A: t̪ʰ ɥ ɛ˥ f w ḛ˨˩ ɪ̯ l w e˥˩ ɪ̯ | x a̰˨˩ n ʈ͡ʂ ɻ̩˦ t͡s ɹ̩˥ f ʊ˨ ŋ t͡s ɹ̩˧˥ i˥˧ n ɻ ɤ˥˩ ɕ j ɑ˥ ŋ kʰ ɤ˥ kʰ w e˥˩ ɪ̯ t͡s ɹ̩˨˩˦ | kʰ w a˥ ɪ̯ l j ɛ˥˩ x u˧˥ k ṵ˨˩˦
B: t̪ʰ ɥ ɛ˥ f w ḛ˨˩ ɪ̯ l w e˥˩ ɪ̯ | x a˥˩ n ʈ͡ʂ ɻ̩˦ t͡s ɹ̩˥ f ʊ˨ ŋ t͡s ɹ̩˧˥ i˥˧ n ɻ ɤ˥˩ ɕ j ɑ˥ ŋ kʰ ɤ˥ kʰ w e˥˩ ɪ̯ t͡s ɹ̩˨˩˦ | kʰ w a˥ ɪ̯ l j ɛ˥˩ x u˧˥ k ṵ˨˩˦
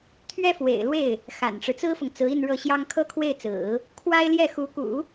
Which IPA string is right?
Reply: A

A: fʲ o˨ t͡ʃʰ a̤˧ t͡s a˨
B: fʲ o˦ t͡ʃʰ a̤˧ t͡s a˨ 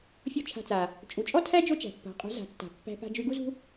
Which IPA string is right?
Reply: B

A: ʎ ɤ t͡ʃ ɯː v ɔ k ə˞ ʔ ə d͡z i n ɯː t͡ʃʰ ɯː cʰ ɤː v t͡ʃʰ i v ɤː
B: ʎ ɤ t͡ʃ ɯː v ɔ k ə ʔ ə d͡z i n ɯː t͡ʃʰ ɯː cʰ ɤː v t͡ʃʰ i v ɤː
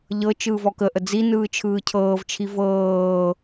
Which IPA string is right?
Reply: B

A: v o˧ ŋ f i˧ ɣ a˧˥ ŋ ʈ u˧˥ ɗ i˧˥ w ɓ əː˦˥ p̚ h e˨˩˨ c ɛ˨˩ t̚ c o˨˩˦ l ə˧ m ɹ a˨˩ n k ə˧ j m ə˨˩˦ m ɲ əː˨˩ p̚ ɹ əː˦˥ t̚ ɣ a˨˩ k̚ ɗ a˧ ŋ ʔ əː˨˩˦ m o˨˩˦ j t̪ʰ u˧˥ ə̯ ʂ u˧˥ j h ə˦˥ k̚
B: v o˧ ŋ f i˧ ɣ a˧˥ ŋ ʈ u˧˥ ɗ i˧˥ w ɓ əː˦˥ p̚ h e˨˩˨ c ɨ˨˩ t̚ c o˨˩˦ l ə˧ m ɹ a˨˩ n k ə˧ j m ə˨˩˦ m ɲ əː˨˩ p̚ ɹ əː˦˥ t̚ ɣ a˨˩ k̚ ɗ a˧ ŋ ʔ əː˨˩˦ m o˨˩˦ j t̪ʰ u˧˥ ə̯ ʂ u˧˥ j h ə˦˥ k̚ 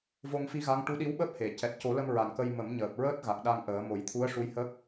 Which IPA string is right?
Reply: A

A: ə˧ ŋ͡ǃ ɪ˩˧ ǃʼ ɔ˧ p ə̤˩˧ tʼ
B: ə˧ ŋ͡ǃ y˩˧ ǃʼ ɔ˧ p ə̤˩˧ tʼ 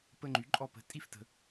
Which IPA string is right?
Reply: B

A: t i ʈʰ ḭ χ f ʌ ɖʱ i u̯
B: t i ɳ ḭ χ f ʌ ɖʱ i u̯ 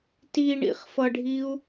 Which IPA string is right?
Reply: B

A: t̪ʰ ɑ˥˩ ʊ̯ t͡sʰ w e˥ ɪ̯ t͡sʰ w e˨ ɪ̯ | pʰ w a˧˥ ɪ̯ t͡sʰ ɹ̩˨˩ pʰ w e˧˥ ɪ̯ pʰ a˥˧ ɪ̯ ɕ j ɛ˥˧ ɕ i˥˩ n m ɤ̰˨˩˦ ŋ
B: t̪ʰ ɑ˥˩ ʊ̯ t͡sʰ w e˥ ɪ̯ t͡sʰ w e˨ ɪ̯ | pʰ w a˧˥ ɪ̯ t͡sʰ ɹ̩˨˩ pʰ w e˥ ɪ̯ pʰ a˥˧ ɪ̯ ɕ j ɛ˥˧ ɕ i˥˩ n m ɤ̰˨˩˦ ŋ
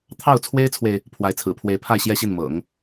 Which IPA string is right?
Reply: A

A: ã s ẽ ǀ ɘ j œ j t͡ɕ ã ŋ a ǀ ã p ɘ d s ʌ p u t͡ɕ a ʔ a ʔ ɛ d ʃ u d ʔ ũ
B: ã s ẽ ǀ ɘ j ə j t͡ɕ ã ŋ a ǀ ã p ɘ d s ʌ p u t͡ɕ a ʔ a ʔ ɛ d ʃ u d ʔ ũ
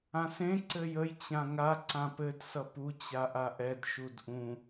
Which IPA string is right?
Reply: B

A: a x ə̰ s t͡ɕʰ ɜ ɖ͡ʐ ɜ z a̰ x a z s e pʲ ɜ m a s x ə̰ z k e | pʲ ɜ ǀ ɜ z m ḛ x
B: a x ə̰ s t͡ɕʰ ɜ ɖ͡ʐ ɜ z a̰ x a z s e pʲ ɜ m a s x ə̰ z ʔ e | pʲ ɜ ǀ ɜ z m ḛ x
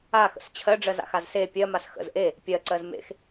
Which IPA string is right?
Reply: B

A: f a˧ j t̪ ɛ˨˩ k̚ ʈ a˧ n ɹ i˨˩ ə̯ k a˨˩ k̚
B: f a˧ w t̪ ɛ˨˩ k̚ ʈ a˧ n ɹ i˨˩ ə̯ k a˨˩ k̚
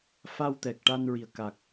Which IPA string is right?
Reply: B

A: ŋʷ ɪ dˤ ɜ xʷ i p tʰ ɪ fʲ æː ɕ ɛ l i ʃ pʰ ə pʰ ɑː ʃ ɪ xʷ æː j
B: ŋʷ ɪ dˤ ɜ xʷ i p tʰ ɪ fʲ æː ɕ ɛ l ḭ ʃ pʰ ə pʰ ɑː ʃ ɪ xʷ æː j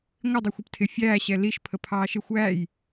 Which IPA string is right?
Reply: A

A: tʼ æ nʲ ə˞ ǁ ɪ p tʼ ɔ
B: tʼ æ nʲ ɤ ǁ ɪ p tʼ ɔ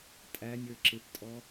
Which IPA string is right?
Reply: A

